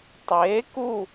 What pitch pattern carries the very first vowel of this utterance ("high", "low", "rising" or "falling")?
rising